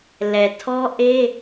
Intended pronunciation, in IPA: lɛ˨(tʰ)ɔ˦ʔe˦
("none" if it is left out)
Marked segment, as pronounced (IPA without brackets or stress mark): tʰ